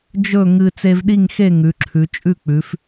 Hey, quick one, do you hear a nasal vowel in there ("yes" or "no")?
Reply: no